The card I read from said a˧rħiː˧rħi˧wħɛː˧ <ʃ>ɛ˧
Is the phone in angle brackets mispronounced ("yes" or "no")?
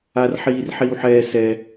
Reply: yes